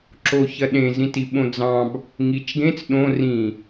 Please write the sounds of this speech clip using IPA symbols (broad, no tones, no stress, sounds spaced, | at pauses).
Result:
ǁ o ç ɐ ɗ ẽ z ĩ t i ɓ õ d͡z ɑ̃ b | ŋ i t͡ʃ ɡ ẽ t͡s ɗ õ r ĩ